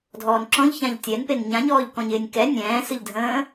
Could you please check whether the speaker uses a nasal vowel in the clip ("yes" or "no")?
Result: yes